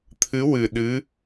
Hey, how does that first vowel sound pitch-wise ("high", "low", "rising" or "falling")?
rising